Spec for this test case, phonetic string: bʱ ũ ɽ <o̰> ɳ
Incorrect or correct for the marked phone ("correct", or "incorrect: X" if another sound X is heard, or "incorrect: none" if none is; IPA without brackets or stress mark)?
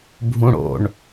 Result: correct